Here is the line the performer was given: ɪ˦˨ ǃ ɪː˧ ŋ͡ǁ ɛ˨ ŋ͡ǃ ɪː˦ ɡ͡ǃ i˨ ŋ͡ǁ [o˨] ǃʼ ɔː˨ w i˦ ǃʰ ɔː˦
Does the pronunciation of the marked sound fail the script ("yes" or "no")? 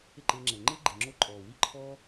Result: yes